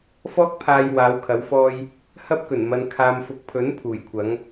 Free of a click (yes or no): yes